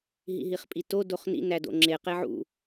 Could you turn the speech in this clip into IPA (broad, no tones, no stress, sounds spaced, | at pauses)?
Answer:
ɦ ḭ ɦ i χ pʼ i t o d o χ n ḭ n æ d o̰ ŋ͡ǁ e q e ʕ ṵ